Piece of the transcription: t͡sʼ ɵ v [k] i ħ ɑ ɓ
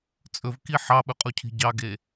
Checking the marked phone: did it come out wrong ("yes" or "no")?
no